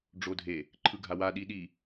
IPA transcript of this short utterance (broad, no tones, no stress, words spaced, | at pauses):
ɖ͡ʐodʱe | ǃʰɯɡʱawa ɗiɗi